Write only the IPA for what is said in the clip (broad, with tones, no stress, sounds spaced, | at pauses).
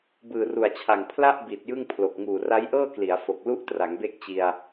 b ɯː˨˩ r u˨˩ a̯ t͡ɕʰ a˨˩ ŋ pʰ l a˥˩ ʔ b i˨˩ t̚ j ɯ˥˩ ŋ pʰ l o˨˩ k̚ ŋ uː˨˩ r a˦˥ j ʔ ɤː˥˩ k l i˩˦ a̯ f o˨˩ k̚ l u˦˥ ʔ t r a˩˦ ŋ b e˥˩ k̚ t͡ɕ i˧ a̯